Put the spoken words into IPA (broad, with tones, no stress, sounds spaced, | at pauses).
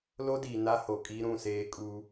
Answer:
l o˦ d iː˨ n a˦ h o˨ kʼ i˦ ɾ ũ˦˨ s eː˦ kʼ u˦